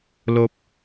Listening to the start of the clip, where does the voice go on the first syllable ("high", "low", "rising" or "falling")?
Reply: low